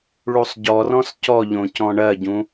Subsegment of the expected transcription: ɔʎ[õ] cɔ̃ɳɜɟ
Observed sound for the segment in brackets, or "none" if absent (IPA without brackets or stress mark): õ